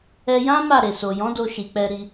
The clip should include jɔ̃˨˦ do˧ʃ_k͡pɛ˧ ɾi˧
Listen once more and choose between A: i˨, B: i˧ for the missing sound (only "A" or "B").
A